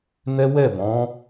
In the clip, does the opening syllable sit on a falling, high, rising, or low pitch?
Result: high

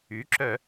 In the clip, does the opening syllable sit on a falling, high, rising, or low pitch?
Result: rising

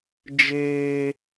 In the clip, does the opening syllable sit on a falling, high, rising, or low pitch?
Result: high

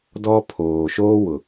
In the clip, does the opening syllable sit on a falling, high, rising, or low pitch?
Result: high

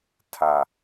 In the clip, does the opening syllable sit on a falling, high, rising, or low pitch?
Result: low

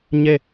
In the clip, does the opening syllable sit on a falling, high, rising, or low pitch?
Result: falling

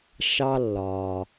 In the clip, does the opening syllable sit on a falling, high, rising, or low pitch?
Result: high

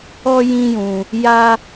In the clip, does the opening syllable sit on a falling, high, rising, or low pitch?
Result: high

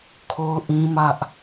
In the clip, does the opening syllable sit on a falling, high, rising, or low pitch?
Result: high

